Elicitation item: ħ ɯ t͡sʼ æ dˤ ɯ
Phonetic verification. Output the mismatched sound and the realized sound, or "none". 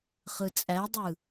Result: ħ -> χ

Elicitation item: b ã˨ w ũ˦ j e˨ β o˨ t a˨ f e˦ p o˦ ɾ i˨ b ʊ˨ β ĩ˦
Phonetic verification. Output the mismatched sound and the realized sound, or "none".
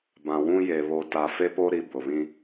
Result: none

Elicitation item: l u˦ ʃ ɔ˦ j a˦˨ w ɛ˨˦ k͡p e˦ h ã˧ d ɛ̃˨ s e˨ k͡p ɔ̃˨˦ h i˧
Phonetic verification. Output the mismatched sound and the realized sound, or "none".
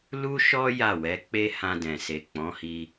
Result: none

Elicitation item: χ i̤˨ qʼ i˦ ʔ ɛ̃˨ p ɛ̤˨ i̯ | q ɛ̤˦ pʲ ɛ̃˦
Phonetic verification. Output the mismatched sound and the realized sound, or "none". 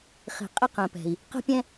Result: ʔ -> q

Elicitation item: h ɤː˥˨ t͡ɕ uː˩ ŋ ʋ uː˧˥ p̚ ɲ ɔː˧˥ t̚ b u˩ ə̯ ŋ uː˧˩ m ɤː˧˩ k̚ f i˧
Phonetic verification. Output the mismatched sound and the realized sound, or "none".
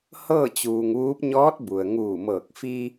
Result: none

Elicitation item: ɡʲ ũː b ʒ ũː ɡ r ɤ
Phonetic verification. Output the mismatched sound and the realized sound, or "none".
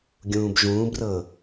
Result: ɡ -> b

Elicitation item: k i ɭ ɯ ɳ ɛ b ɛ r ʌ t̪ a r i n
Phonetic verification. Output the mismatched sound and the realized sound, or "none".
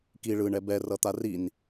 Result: none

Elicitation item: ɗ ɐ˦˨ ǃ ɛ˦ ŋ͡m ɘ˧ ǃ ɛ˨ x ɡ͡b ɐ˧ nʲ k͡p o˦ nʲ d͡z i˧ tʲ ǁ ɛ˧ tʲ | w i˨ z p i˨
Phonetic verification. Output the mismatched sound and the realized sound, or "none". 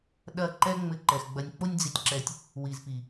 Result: none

